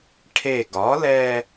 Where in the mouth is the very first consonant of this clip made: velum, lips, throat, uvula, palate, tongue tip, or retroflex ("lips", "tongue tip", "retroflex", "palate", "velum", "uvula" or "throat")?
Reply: retroflex